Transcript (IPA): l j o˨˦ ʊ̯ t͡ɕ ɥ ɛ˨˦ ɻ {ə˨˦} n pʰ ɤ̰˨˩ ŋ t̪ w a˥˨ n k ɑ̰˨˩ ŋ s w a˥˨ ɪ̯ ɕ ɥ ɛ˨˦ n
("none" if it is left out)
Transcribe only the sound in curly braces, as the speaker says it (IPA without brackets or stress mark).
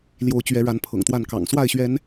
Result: a˨˦